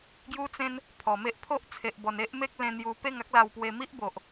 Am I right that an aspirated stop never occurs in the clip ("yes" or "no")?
no